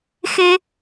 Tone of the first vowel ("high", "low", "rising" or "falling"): high